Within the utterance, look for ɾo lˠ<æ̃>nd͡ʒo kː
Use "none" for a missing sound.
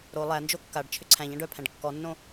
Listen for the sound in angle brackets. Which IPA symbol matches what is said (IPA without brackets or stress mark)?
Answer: æ